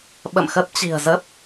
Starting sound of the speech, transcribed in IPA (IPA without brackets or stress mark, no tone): ɓ